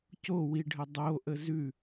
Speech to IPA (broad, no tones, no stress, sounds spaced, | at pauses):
c o w i ɖʱ ə dˤ o ʔ ə z ʉ